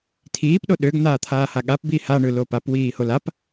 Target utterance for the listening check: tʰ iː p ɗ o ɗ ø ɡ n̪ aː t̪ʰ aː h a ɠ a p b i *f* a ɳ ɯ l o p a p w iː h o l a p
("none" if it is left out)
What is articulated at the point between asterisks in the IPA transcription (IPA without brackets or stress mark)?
h